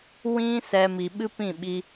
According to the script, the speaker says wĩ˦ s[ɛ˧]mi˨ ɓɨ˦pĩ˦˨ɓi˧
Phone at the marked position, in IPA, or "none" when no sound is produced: ɛ˧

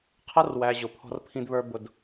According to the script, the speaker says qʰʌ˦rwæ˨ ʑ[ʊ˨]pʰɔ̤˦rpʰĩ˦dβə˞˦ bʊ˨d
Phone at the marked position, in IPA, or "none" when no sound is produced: ʊ˨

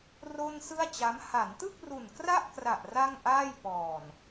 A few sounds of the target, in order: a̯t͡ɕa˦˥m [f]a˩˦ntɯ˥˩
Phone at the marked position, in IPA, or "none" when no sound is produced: h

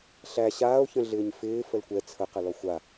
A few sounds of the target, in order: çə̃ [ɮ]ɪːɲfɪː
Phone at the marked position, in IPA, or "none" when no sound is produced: ɮ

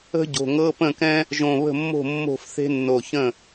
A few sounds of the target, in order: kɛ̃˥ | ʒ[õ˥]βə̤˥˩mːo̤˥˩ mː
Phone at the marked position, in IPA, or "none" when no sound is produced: õ˧˩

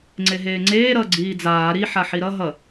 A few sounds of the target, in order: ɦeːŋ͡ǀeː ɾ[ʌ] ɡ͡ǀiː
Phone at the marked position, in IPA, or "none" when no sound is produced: ʌ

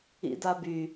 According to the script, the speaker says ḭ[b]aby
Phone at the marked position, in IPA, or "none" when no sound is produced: d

